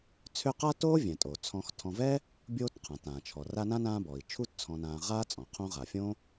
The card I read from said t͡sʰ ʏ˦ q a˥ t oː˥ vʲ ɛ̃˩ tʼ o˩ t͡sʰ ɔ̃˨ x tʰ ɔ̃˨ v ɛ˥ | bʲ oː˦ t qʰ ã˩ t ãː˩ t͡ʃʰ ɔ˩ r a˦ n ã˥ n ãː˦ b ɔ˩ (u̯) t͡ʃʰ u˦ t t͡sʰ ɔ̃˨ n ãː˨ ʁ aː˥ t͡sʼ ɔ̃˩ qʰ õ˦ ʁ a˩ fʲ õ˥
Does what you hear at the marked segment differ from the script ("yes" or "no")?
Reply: yes